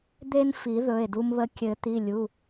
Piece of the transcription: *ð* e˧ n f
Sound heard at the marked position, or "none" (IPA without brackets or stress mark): d̪